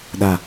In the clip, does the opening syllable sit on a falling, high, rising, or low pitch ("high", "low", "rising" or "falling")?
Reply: low